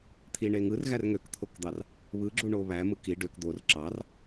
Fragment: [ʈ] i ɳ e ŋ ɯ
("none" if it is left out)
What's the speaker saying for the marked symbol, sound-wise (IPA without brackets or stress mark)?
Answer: t̪ʰ